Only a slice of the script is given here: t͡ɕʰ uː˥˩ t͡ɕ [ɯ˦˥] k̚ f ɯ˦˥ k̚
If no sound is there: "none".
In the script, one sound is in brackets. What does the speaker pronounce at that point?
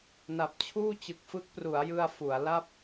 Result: ɯ˨˩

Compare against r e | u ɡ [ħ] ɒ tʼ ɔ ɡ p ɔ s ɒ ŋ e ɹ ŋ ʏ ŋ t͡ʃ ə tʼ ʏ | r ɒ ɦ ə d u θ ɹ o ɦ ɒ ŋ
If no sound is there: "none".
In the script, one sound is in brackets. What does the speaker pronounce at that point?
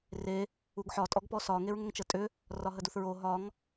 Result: ħ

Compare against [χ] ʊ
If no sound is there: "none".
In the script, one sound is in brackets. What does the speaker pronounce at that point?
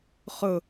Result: χ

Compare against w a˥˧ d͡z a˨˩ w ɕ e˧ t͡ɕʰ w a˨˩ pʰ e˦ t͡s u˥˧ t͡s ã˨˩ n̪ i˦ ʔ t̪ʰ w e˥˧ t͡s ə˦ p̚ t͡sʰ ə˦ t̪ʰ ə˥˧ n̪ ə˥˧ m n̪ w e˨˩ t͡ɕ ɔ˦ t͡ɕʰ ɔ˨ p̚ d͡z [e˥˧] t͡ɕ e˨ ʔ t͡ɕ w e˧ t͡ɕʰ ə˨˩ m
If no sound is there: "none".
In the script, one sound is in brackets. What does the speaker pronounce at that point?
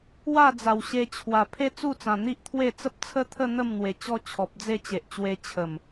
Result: e˥˧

